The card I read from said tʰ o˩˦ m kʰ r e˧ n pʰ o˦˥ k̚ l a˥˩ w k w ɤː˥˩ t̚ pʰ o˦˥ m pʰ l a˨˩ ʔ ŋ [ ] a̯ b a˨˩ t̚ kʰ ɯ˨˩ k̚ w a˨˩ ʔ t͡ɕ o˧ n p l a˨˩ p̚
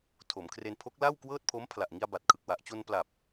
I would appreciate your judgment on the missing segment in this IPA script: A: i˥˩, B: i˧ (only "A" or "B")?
B